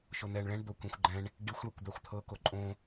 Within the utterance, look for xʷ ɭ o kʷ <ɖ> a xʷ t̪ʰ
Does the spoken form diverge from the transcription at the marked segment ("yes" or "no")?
yes